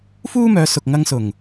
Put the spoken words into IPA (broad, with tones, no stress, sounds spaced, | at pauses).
f uː˥ m œː˨˧ s ʊ˨ k̚ ŋ ɐ˧ ŋ s ʊ˨˩ ŋ